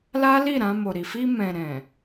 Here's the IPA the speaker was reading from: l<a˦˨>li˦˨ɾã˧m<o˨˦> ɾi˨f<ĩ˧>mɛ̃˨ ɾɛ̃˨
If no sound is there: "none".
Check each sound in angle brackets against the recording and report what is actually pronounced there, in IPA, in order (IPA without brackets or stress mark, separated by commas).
a˦, o˨, i˧